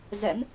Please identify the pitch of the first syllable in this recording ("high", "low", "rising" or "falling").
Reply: rising